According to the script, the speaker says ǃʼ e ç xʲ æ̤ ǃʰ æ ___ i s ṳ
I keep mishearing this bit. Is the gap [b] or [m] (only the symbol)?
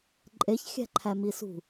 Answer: m